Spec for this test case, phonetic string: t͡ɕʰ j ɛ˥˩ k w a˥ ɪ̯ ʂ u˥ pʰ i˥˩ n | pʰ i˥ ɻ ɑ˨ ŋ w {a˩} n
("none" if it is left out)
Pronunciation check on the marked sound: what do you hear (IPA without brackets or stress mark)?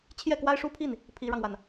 a˩